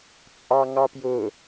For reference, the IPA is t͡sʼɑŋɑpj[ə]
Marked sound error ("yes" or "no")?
yes